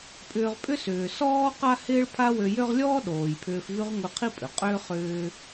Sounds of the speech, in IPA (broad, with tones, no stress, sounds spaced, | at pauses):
pʼ ʏː˧ ʁ pʼ ʏ˥ s ʏː˩ s ɔː˥ q a˥ h ɪː˥ ɭ pʰ a˥ w ø˧ j ø˥ ʁ lʲ ɔː˥ ɗ oː˩ j pʰ ʏː˧ f v y˥ ʁ ŋʷ i˧ qʰ i˥ pʼ ʏ˩ qʼ ʏː˥ χ ʏː˧